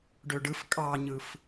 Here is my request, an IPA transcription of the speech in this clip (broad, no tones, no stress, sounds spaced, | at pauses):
ɖ ø ɖ ɯ f kʼ ɑ ɲ ɯ f